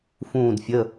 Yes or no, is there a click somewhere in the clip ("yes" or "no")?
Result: no